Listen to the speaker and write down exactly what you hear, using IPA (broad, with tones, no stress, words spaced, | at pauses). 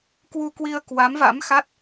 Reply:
kwu˧kwi˧ə̯ kwa˨˦mva̰˧˥mxa˦˥t̚